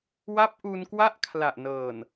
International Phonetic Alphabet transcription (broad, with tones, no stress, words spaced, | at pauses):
wa˦˥p̚ʔu˧nkwa˦˥ʔ kʰla˨˩ʔnɤː˨˩n